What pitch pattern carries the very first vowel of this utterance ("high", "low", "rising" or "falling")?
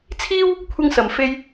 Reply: high